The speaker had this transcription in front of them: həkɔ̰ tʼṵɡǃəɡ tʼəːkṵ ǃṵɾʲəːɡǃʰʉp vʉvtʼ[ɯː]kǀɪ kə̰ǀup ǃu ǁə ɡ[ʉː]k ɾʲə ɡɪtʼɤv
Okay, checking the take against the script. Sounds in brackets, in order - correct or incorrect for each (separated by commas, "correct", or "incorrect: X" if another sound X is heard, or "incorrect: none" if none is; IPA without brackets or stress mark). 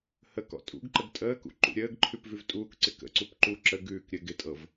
incorrect: uː, correct